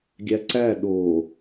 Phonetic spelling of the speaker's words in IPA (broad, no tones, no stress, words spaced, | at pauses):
ɡʲæǀæ ɗo